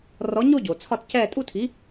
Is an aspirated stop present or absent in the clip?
present